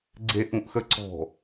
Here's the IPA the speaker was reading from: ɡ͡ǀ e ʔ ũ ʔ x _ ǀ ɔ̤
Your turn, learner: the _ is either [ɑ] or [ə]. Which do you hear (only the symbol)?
ə